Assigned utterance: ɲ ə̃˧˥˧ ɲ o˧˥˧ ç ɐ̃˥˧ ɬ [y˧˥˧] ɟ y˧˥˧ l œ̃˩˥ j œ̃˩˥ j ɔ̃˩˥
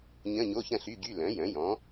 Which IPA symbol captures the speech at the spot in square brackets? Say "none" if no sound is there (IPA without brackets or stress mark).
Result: y˧˥˧